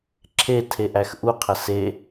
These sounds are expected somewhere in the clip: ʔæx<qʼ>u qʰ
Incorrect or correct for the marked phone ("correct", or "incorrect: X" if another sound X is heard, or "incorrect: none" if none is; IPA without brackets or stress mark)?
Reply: incorrect: ʔ